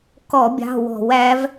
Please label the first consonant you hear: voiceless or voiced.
voiceless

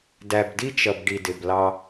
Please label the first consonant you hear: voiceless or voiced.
voiced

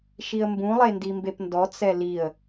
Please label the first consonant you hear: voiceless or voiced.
voiceless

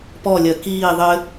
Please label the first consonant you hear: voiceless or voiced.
voiceless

